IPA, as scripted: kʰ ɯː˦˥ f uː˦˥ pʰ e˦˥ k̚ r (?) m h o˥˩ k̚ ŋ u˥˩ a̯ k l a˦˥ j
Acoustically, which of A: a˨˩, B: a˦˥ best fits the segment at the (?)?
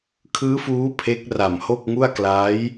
A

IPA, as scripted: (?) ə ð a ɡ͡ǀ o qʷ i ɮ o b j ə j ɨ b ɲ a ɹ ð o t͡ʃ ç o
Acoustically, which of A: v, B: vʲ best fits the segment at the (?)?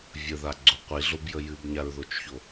B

